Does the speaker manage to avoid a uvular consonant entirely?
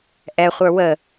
no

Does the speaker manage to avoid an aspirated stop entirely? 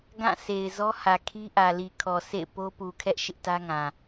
no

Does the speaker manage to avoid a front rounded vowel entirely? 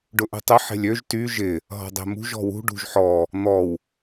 no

